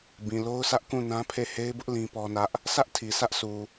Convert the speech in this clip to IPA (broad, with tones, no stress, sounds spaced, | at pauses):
b ĩ˨ l o˦ ʊ̯ sʰ ä˦ ʔ k ũ˦˨ n ã˦ pʰ e˦˨ h e˦ ɪ̯ b ʊ˦ ʔ l ĩ˦ p ɔ˦ n ä˦ ʔ | sʰ ä˦ ʔ tʰ i˨ s ä˦ ʔ sʰ u˨